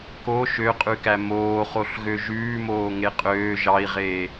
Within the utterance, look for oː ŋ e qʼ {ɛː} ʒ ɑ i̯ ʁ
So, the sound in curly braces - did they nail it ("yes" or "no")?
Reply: no